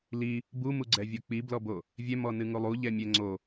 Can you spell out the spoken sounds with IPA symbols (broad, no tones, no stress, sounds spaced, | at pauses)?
l i | b u m u ɡ͡ǀ ɛ vʲ o k͡p i b l ɔ b o | vʲ ɛ m ɔ n ɨ ŋ u lˠ u ʎ ɛ mʲ ɛ ŋ͡ǀ o